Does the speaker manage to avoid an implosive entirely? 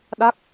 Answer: no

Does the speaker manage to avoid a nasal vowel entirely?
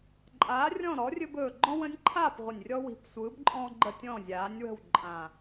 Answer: no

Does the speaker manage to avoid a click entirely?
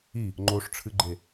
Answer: no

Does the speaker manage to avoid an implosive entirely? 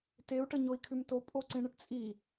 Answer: yes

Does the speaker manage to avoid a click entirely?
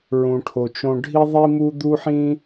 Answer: yes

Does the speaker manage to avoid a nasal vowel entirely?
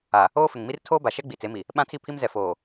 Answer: no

